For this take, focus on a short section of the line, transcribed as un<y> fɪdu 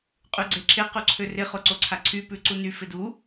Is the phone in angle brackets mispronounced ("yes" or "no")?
no